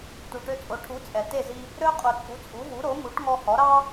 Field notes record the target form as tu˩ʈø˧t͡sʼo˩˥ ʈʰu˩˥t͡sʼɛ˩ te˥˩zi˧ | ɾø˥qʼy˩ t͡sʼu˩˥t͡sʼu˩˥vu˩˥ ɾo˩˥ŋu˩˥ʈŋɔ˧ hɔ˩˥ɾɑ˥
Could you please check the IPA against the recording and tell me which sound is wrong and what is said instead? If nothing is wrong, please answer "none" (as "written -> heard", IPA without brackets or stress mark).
y˩ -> u˩